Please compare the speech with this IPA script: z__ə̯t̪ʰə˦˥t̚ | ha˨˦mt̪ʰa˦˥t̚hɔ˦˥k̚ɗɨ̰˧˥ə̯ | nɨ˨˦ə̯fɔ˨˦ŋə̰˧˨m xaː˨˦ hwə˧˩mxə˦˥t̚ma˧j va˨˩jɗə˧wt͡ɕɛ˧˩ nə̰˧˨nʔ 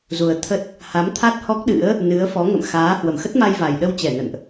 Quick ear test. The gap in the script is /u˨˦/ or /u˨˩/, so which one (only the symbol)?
u˨˩